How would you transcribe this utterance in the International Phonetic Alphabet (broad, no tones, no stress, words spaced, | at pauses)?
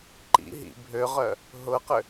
ǃḭ ɦḭ bʱøʁœ | ɦʊqʏ